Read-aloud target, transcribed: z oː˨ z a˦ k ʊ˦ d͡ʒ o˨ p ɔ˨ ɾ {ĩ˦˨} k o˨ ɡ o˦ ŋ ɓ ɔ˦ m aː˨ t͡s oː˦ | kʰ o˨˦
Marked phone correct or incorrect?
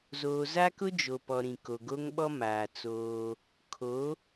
incorrect